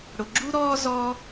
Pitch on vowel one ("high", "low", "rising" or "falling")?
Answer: low